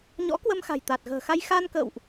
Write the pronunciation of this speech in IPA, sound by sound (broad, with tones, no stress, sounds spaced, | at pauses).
ɲ ɔ̰˧˥ k w ə˧ m x a̤˨˩ j t̪ a˨˩ t̚ ɣ ə̤ː˨˩ x a˧ j x a˧ n k ə̰ː˧˨ w ʔ